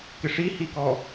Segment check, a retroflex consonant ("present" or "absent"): present